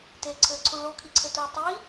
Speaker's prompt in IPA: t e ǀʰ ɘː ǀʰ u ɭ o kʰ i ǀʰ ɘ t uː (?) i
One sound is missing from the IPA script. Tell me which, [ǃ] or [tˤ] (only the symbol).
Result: tˤ